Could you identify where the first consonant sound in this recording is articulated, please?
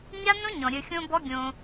palatal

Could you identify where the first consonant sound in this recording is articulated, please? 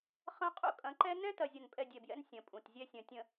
uvular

